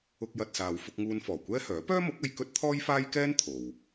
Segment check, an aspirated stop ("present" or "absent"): present